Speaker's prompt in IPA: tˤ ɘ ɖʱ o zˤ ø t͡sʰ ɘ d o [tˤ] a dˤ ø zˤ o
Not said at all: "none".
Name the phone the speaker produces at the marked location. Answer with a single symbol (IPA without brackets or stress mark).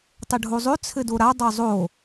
ɾ